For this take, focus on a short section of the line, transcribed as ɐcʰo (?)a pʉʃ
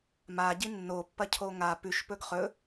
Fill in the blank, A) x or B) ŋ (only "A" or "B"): B